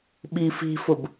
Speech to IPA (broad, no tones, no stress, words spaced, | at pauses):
ɓifi̤fʊb